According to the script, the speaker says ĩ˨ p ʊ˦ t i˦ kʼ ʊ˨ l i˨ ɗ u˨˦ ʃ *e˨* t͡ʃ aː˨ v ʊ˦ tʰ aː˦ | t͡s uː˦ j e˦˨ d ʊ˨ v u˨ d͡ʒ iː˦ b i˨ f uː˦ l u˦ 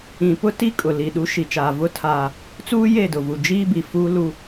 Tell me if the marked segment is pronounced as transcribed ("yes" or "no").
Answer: no